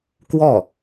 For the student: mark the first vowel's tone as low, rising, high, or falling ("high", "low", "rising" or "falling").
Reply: falling